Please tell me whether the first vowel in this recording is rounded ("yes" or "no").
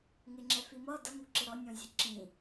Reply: no